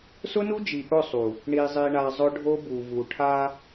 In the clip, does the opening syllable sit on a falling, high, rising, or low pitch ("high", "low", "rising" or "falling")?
high